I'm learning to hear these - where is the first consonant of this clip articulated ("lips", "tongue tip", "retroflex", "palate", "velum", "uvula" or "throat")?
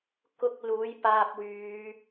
velum